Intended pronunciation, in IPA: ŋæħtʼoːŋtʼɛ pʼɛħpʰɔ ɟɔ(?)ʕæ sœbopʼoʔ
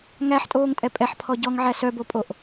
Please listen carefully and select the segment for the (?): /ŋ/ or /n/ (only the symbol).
ŋ